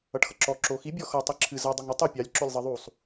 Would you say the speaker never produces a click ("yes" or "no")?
no